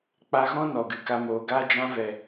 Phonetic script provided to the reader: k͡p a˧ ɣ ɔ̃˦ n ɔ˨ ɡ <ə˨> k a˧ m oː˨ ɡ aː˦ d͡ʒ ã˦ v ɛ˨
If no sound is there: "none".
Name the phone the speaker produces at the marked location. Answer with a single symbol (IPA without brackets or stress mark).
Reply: ɨ˨